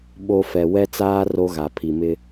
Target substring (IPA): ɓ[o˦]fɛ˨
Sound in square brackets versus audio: correct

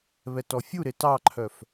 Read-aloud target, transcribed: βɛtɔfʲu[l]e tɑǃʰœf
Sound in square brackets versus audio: incorrect: ɾ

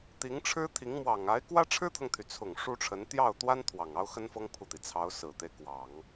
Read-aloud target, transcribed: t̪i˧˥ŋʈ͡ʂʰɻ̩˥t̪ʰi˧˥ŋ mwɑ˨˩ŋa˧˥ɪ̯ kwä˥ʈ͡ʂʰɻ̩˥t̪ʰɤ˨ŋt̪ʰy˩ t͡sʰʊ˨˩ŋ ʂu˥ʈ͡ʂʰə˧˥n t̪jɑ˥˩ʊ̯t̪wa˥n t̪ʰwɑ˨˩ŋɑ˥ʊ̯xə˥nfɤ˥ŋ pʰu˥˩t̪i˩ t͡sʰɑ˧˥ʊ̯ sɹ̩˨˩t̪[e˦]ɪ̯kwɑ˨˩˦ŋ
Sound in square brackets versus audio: correct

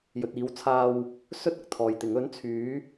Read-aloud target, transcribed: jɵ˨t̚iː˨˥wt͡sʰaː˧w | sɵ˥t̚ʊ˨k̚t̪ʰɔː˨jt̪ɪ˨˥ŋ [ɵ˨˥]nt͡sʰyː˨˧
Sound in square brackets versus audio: correct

